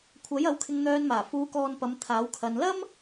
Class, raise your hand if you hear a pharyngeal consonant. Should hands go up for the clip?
no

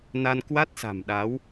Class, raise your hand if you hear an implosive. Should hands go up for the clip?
yes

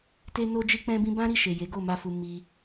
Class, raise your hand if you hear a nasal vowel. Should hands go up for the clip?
yes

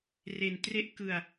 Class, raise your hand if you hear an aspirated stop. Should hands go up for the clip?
no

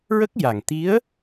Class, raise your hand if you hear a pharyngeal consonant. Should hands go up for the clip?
no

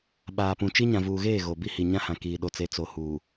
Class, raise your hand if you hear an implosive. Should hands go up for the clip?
yes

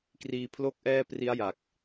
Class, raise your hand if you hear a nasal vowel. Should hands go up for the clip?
no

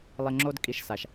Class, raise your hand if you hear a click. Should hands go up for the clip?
yes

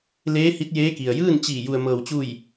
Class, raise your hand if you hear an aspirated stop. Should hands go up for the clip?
no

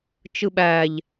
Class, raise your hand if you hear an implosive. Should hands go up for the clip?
yes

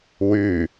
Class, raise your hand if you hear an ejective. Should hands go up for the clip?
no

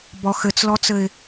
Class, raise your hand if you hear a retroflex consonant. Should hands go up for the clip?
no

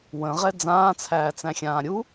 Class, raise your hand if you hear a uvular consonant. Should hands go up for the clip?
yes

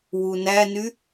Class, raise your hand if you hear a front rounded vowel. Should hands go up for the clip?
yes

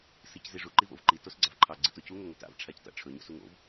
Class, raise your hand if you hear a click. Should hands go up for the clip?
yes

